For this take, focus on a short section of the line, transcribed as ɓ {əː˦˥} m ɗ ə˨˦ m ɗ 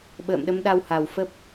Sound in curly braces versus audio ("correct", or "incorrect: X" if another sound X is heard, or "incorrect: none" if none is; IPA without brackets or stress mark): incorrect: ə̰ː˧˨